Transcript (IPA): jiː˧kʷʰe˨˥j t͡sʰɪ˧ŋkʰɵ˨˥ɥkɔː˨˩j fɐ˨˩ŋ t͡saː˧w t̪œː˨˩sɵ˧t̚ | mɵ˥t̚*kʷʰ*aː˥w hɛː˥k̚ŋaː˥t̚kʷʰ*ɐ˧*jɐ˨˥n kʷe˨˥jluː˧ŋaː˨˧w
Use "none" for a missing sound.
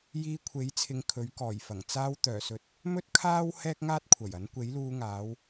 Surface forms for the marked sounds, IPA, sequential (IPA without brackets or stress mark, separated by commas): kʰ, ɐ˨˩